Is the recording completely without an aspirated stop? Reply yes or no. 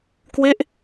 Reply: yes